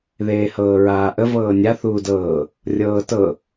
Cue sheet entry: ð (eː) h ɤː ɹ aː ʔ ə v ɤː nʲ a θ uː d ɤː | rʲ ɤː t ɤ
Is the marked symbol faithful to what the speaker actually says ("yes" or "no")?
yes